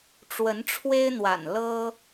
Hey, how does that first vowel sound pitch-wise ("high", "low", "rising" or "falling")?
rising